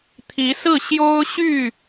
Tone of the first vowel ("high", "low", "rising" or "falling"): rising